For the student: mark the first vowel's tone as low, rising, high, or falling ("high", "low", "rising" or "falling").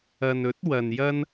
low